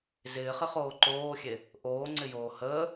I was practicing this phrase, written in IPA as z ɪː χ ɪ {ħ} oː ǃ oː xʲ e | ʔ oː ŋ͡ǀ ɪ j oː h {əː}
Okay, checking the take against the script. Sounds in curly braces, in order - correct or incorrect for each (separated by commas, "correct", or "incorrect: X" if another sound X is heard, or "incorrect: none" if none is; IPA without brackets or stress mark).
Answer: incorrect: χ, correct